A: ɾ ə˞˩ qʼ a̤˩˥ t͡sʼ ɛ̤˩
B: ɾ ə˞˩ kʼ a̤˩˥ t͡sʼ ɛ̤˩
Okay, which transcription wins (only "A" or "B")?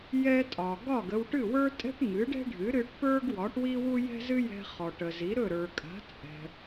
B